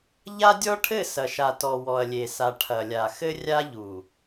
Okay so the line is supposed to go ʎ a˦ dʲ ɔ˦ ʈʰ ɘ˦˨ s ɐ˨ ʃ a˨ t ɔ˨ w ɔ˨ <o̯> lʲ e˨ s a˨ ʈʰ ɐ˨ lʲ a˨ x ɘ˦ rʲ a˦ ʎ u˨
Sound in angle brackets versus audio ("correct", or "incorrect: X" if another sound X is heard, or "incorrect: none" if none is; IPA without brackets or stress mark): incorrect: ɐ̯